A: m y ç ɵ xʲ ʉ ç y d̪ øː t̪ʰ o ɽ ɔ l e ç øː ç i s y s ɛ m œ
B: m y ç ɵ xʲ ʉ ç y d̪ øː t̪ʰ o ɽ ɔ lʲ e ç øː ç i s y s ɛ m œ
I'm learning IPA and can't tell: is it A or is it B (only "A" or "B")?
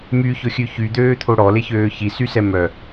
A